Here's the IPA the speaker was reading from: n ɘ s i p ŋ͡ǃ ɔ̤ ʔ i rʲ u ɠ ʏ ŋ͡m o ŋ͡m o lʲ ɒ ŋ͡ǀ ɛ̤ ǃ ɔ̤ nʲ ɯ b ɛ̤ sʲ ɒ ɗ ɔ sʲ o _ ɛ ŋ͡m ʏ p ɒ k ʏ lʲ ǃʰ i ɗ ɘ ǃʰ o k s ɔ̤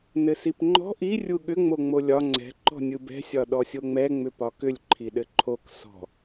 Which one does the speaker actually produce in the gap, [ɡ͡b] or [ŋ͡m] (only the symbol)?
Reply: ŋ͡m